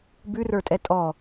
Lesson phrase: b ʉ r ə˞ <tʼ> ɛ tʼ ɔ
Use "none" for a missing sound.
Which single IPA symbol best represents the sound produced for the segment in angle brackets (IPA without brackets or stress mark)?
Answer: tʼ